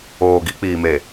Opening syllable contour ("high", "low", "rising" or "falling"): low